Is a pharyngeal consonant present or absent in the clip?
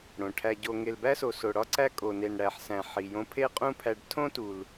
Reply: present